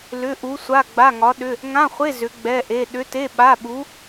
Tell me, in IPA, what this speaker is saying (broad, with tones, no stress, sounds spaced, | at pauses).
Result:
l ʏ˧˥˧ ʔ u˧˥ sʷ a˧˥˧ ɡ͡b a˧˥˧ ŋ ɒ˧˥ ɗ ʏ˧˥˧ | ŋ ã˧˥˧ χʷ e˧˥˧ z ʏ˧˥ ɡ͡b ɛ˧˥˧ ʔ e˧˥˧ ɗ ʏ˧˥ t e˧˥˧ ɓ a˧˥˧ ɓ u˧˥